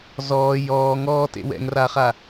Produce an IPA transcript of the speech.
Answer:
z ɔː j ɔː ŋ ɔː t ḛ w ɛ̰ ŋ r aː χ a

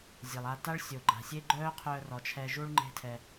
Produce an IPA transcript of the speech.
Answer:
zʲ e˨ lˠ a˧ t a˦ ɭ sʲ o˨ ɡ͡ǃ a̤˨ sʲ e˦ ɡ͡ǃ œː˦ qʰ œː˧ r ɔ˨ t͡ʃʰ ɛ˧ ʒ u˦ ɭ ŋ͡ǃ e̤˦ tʰ ɛ˧

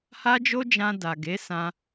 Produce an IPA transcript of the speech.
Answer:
h a˦ d͡ʒ o˦ d͡ʒ ã˧ d a˨ ɡ e˨˦ s ã˧

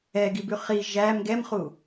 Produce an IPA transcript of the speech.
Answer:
ɛ ɡ i b ʉ χ i ʒ æ m ɡ ɛ m χ u

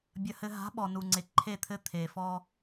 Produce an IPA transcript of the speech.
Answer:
bʲ ɐ˨ h ɘ˨ ɦ a̤˨˦ ɓ ɔ˨ n u˨ ŋ͡ǀ e˨ ǃʰ e˦˨ t̪ʰ ɘ˦ t̪ʰ e˨ f ɔ˦

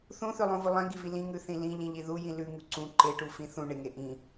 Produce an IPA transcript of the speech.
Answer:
θ ũ θ ʉ lˠ ũ v u lˠ ĩ ɡ i v i l ĩ ŋ ʉ θ ĩ l ĩ ʎ ĩ ʎ i ð u j ĩ l ʉ ŋ u ǀ ũ ǃ e ʈ u f ĩ θ ũ ɳ e ŋ e ʔ ĩ

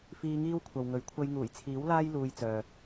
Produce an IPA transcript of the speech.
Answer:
f iː˧ ŋ iː˥ w kʷʰ ɐ˨ w ŋ ɵ˨˥ ɥ kʷʰ ɐ˧ j ŋ uː˨˩ j t͡sʰ iː˨˥ w l aː˥ j l uː˧ j t͡s œː˨

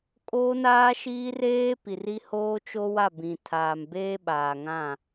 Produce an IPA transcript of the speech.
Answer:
kʼ oː˦ n aː˦ ʃ iː˦ r eː˦ p i˨ r i˦ h oː˦ t͡ʃ o˦ w a˦˨ b ĩ˨ tʰ aː˨ m b eː˦ ɓ aː˨ ŋ ã˦˨

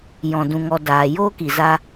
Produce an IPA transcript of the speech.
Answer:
j ɔ̃˨ d ũ˨ ŋ ɔ˨ d aː˨ j o˦ k i˨ z a˦

